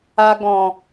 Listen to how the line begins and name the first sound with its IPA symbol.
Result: a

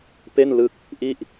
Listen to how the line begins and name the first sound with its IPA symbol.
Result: p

